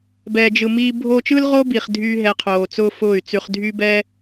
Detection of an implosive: absent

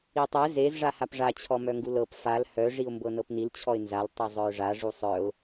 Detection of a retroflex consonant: present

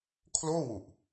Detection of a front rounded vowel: absent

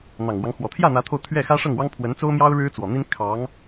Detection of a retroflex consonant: present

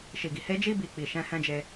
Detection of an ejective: absent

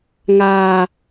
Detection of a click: absent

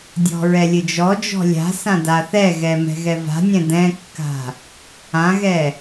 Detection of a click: absent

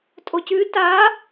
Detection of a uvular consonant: absent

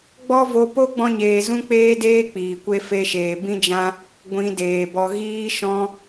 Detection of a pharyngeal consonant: absent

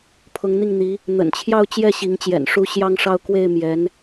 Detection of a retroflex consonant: present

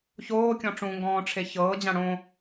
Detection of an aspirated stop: present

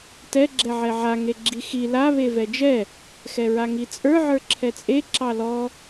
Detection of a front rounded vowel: absent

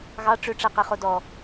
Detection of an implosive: absent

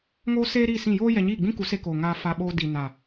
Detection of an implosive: present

